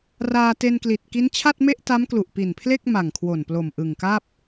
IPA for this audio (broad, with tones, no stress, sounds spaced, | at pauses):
r aː˧ t e˧ n k l i˨˩ t̚ k i˦˥ n t͡ɕʰ a˥˩ t̚ m e˥˩ ʔ t a˦˥ m k l u˨˩ ʔ p i˨˩ n pʰ l e˥˩ k̚ m a˨˩ ŋ kʰ w o˨˩ n p l o˨˩ m ʔ ɯ˨˩ ŋ k a˥˩ p̚